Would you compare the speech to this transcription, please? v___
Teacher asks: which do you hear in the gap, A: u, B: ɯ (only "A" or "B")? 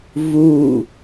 A